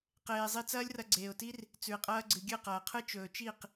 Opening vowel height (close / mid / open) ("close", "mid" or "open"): mid